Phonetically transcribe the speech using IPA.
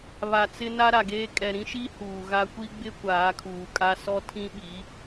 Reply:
β a˨ t͡s ɪ˦ n a˦ ɾ a˨ ɡ eː˦ kʼ ɛ˨ ɾ ĩ˦ ʃ i˦ h uː˨ ɣ a˦ kʷ i˦ ɡ͡b ɪ˦ kʷ aː˨˦ kʰ uː˨ kʼ a˦ s ɔ˦ tʰ ĩ˦ ɓ i˨˦

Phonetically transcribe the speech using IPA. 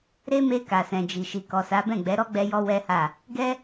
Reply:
ɾ e˦ m e˧ k a˨ s ɛ̃˨ d͡ʒ i˨ ʃ i˨ k ɔ˨ s a˨˦ b ɛ̃˦˨ ɡ͡b ɛ˨˦ ɾ ɔ˦ ɡ͡b ɛ˧ j ɔ˧ w ɛ˦ h a˦˨ | ɡ ɛ˦

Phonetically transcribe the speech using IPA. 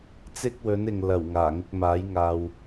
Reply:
t͡s ɪ˥ k̚ w ɵ˨˥ n ɪ˨ ŋ l ɐ˨˩ w ŋ aː˨˩ ŋ ɪ˧ k̚ m aː˨˥ j ŋ aː˧ w

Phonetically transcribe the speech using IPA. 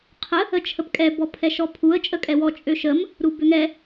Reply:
qʰ ə | ə t͡ʃʰ ə p kʼ ɛ b ɔ pʰ ɛ ʃ ɔ pʰ u ə̯ t͡ʃʼ ə kʼ ɛ w ɔ t͡ʃʼ ø ʃ ə m | ɾ u b ø ŋ ɛ

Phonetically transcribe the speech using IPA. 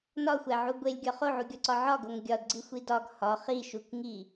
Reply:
n ɒ xʷ æ ʕ u ɡʷ e lʲ ɡʲ ɒ χ o ʕ u ɡʲ ɒ ǀ ɒ ʕ ɒ ɡ o ŋ ɡʲ ɒ d ɡ͡ǀ i xʷ i d ɒ ɡ h ɒ χ i ʃ u k ŋ i

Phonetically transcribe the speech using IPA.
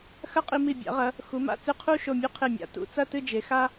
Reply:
x ɐ˥ qʼ i˧ m i˧˩ bʲ a̰˩˧ ʁ ɐ˩˧ | x u˩˧ m a̰˧ t͡s ɨ˧˩ qʰ u˥˧ ʃ o˧˩ mʲ ɵ˥˧ qʰ e˧˩ mʲ a̰˩˧ t ṵ˩˧ t͡s ɐ˥˧ t ɨ˥˧ d͡ʒ e˩˧ x a˥

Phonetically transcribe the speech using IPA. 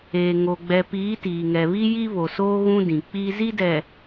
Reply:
e˨ ŋ o˨ ɡ͡b ɛ˨ p iː˨˦ t iː˨ ŋ ɛ˨ β i˦ j i˦ β o˨ s oː˦ ɣ ũ˦ d ĩ˨ k͡p i˦ z i˦ d ɛ˨

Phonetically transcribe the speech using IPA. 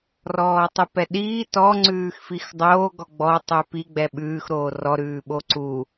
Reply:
r ɔː tˤ ʉ p ɛ ɗ iː t ɔ ŋ͡ǀ ʉː x f i x dˤ oː ɡ ɔ ɡ͡b ɔ tˤ ʉ p i ɡ͡b ɛ ɓ ʉː x ɾ oː r ɔ ɾ ʉː ɓ o ǀ u

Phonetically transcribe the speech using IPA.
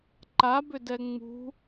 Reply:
ǃ a b ʏ d ɛ ŋ͡m ṳ

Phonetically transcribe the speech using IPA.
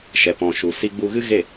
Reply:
ʃ ɛ˨ p ɔ̃˨ ʃ u˨ s i˧ ɡ͡b u˧ ɣ ɨ˦ ɣ e˦˨

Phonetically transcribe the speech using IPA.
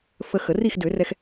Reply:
f ə˧ x ə˨˩˦ r i˥˨ x d ø˨˩˦ r ɛ˧ x

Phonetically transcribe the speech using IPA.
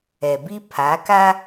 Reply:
ɛ˨ b i˦ pʰ a˨˦ k a˦

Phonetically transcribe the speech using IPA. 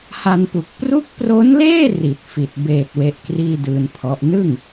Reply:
h a˧ n p u˨˩ k̚ p r u˦˥ k̚ p r o˦˥ n l eː˥˩ r i˨˩ t̚ f i˨˩ t̚ b eː˨˩ t̚ w e˦˥ ʔ k r iː˥˩ d ɯː˧ n pʰ ɔ˦˥ ʔ n ɯ˥˩ ŋ

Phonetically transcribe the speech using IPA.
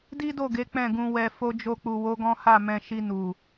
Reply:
d i˦ d o˦˨ ɡ e˨˦ k͡p ɛ̃˦˨ ɡ ũ˧ w ɛ˧ f o˧ d͡ʒ o˧ k͡p u˨ w o˨˦ ɡ ɔ̃˦ h a˦˨ m ɛ̃˧ ʃ i˧ n u˨

